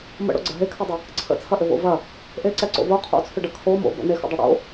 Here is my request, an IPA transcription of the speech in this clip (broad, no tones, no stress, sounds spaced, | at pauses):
m ə̰ ɽ o̰ ɡ͡ǀ ə ɦ e kʰ ɐ dˤ ə | ǀʰ ə̰ t͡sʰ ɐ ʔ ʏ v o̰ v ɐ | ʔ e ǀ ɛ ǀ o̰ v o qʰ o̰ t͡sʰ ʏ ɖ ɐ kʰ o m o̰ b ə̰ n e x ə̰ dˤ ɐ ɽ o̰